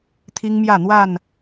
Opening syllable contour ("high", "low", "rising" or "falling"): high